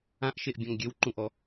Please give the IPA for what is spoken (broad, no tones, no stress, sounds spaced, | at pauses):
ã ʔ ʃ e ʔ bʲ ɔ̃ ŋ ɡʲ ø w ǃ ũ ʔ ɔ